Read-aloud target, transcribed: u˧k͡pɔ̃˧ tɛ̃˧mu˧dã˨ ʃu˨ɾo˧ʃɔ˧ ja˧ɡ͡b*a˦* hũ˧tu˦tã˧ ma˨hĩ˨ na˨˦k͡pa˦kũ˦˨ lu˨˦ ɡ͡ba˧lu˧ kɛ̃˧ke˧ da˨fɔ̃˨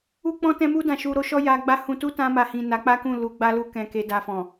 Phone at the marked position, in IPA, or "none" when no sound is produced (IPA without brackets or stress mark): a˦